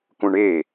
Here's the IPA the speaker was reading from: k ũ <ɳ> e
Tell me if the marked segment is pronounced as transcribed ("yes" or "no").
yes